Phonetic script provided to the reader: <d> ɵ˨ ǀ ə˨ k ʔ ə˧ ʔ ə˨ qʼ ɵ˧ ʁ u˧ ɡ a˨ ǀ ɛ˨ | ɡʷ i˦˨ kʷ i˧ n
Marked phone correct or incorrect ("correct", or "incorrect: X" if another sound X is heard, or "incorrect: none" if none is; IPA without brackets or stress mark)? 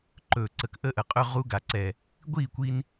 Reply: incorrect: ǃ